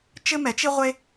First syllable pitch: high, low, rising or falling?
high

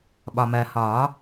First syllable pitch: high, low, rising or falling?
low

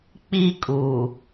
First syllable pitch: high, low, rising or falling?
high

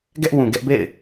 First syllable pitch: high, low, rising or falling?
high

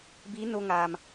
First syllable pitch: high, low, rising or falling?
rising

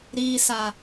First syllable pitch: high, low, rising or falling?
low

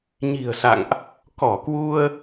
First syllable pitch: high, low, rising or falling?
low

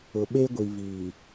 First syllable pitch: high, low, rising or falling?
low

